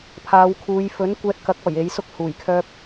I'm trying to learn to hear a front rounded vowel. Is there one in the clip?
yes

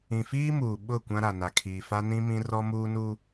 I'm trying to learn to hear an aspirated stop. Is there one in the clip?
yes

